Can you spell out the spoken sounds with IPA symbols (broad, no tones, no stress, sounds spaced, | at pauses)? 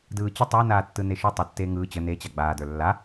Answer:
d ɯː t͡ɕ ə tˤ əː n aː tː ɯ n e ʃ ʊ tˤ ə tː eː ŋ ɯː t͡ɕ ə n e t͡ɕ a ɡ͡b aː d ə˞ lː a